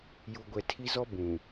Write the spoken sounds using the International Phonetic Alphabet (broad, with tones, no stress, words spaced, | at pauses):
ju˨ɡʷɛ˨ tʰi˦zɔ˦ bũ˨